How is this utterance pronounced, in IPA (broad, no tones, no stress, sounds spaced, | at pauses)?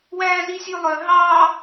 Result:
w æː z i sʲ ʉ lˠ œ ɦ ɑ